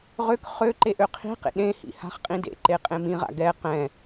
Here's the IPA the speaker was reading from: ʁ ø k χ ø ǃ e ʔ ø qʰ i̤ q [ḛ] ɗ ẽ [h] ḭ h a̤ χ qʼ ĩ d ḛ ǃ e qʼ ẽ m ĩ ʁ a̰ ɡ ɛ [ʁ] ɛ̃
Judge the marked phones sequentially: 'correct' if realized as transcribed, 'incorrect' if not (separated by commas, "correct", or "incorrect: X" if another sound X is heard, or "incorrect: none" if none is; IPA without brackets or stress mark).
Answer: correct, correct, incorrect: q